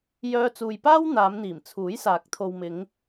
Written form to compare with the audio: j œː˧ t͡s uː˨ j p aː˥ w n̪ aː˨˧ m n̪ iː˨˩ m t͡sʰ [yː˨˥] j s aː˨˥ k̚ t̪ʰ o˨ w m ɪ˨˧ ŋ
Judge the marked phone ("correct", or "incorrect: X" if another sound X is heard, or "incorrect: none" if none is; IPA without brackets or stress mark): incorrect: uː˨˥